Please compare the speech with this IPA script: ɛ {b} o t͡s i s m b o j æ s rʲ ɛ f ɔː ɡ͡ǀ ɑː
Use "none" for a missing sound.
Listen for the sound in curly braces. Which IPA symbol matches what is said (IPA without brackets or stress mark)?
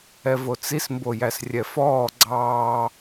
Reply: v